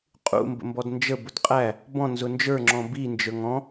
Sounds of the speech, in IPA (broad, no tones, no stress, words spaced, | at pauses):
qʼṵmbə̰mbɔd nd͡ʒəbʊd qʼæ | bɔ̃nzʊ nd͡ʒə˞ŋ͡ǁɔ̃ bind͡ʒə˞ŋ ɔ̃